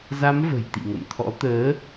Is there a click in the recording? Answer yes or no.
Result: no